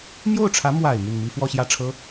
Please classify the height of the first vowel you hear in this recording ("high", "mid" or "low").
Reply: mid